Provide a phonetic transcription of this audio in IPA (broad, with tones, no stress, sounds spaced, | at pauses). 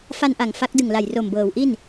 f a˧ n ʔ a˨˩ ŋ f a˦˥ k̚ d ɯ˨˩ ŋ l a˨˩ j r o˨˩ m b ɤː˩˦ w ʔ i˥˩ n